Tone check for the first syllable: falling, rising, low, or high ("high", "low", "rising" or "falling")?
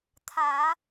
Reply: low